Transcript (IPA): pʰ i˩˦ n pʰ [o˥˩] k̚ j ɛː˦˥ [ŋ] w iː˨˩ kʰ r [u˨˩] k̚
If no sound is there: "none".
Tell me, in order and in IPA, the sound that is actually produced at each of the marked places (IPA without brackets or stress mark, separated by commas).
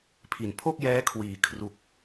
o˥˩, kʰ, u˨˩